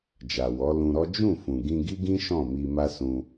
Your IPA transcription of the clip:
d͡ʒ a˨ w ɔ˨˦ l ũ˧ ɾ ɔ˦ d͡ʒ ũ˦˨ f ũ˨ ɡ ĩ˧ ɡ i˦ ɡ ĩ˦ ʃ ɔ̃˦˨ m i˧ m a˦ s ũ˧

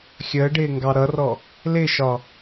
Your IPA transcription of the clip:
xʲ əː ɖ ɪː ŋ ɡ ɑ ɾ ʌ r ɔ | l ɪ ʃ ɒ

